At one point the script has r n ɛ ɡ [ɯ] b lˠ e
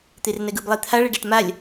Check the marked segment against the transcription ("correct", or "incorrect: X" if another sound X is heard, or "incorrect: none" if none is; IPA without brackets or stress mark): correct